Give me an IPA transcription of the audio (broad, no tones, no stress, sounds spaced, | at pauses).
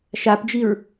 ʃ a p d͡ʒ i ɹ